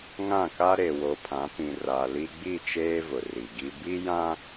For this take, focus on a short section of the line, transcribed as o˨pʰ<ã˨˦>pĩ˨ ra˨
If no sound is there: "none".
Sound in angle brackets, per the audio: ã˨˦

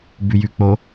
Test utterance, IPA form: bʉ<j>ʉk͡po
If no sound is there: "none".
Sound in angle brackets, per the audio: j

